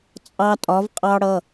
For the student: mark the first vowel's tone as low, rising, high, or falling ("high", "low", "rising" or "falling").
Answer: high